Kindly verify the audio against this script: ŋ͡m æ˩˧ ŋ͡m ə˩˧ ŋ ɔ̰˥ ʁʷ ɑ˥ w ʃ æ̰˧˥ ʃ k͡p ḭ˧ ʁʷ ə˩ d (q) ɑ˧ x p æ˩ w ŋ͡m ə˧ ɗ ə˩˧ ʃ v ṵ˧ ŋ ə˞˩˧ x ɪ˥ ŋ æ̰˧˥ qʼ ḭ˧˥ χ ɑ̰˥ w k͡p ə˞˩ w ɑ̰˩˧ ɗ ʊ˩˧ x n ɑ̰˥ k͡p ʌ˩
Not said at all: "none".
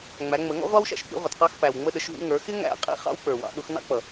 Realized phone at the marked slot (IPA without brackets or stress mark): q